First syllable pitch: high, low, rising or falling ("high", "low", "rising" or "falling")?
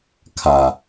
low